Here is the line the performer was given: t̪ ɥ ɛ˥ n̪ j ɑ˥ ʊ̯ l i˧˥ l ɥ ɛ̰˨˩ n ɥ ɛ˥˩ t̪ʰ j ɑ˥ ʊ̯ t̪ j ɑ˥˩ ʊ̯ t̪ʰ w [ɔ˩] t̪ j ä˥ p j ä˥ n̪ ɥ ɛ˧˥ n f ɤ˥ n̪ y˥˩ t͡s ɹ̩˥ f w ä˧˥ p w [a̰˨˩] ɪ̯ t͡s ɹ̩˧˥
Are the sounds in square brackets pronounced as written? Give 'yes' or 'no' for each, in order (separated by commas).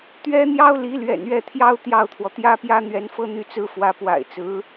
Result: yes, yes